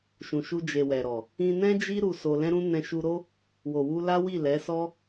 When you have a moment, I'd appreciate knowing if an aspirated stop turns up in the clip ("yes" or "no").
no